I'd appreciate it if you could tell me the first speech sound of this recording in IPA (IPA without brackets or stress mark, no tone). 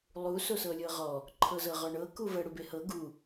lˠ